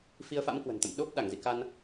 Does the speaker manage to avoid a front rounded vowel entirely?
yes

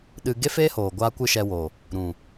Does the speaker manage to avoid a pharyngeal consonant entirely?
yes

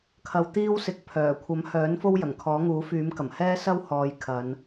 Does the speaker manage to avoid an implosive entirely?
yes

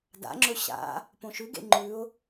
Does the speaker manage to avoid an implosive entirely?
yes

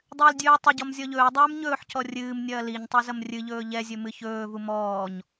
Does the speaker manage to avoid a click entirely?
yes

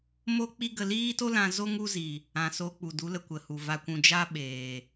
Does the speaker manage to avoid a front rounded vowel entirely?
yes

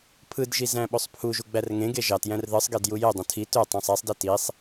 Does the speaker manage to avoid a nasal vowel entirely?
no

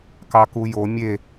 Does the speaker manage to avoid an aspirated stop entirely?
yes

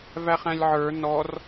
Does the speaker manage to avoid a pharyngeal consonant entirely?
no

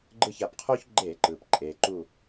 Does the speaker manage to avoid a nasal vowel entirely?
yes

